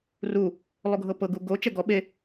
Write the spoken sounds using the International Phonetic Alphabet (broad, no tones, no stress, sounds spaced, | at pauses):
r u | lˠ o ɡʱ ɤ p ɤ ɡ u ɡ o t͡ʃ ɛ ɡ ɔ ɓ e